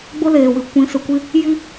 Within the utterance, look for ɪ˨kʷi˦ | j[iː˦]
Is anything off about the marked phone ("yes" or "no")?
yes